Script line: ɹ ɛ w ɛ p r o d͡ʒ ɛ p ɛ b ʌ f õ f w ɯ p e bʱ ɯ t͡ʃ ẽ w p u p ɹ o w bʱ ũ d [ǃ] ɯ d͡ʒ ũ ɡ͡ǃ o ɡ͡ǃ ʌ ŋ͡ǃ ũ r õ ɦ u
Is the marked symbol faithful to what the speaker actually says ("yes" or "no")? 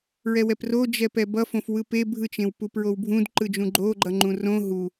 yes